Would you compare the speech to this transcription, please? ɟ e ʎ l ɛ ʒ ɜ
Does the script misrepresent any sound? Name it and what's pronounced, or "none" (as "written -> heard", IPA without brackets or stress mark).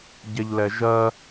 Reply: none